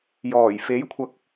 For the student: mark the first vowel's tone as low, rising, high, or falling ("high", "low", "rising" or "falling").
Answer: low